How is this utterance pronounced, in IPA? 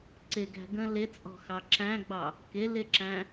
ǀ ɪ ɡ æ̤ ɡ ə̃ l ɪ t͡sʼ ɔ̤ x ɑ ǁ æ̃ ɡ͡b ɑ | k ɪ l ɪ ǁ æ̃

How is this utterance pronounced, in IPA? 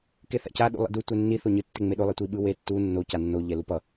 k e θ a̰ c a ɗ ṵ lˠ ḭ d u tʷ ɛ nː i θ o ɲ ɯ tː e ŋ͡m e ɗ o lˠ e tʷ i ɓ ɯ w e tː u nː o c a nː o ʎ ɛ l u p ʌ

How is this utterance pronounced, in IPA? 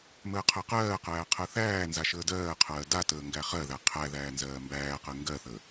m əː qʰ ɜ q ɜː q æː qʰ ɜ θ æː n z a ʃ əː d ɜː qʰ ɜː d a t əː ŋ ɡ æ χ ɜ ð æ qʰ æ ð æː n z ɜː m b æː q ɜ ŋ ɡ ɜ θ əː

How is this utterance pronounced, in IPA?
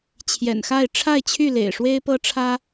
t͡ɕʰ j ɛ̰˨˩ n x a˥˨ ɪ̯ ʈ͡ʂʰ a˥˨ ɪ̯ t͡ɕʰ y˥˨ l ḛ˨˩ ɪ̯ ʂ w e˦ ɪ̯ p ɤ˦ ʈ͡ʂʰ ä˦

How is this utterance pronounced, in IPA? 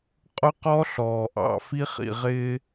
qʼ ʊ˦ q ɔ˦ ɬ ɔː˨ ʔ ɑ̰˨ f i˦ χ ḭ˨ ʁ ɪː˦

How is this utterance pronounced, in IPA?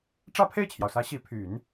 ʈ͡ʂ ä˥˧ pʰ e˥˩ ɪ̯ t͡ɕʰ j ɑ˩ ʊ̯ s ä˧˥ ɕ i˧˥ pʰ y˨˩˦ n

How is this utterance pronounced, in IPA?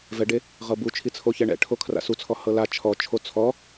v ɛ ɖ e | ʁ ɤ b u t͡ʃʰ i t͡sʰ o ç ɛ ɳ ɛ̰ ʈʰ o kʰ r a̰ s u t͡sʰ ɔ h ɤ l a t͡ʃʰ ɔ t͡ʃʰ o t͡sʰ ɔ

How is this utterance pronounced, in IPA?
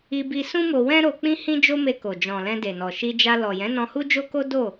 i˧ b i˧ s ũ˦ m o˧ w ɛ̃˦ ɾ o˧ k͡p ĩ˦ h ĩ˦ d͡ʒ o˦ m e˧ k o˨ d͡ʒ ɔ̃˨ l ɛ̃˧ d e˨ n ɔ˨ ʃ i˧ d͡ʒ a˧ l ɔ˨ j ɛ̃˨˦ n ɔ̃˧ h u˦ d͡ʒ o˦ k o˦ d o˦˨

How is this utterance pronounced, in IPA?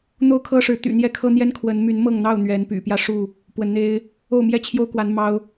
n̪ o˥˨ ʊ̯ kʰ ɤ˦ ʂ ɻ̩˨˦ t̪ y̰˨˩ n̪ j ɛ˦ kʰ ɤ˦ n̪ j ɛ˦ n kʰ w ə˨˦ n m y˨˦ n m ɤ˥˨ ŋ n̪ ɑ˥˨ ʊ̯ n̪ ɥ ɛ˨˦ n p y̰˨˩ p j ä˥˨ ʂ u˥˨ | p w ə˨˦ n n̪ e˦ ɪ̯ | o˥˨ ʊ̯ m j ɛ˥˨ t͡ɕʰ j o˦ ʊ̯ k w a˨˦ n m ɑ˦ ʊ̯

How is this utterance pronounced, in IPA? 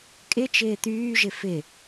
kʼ ɪ t͡ʃ ɪː t̪ yː ʒ ɪ f ɪ

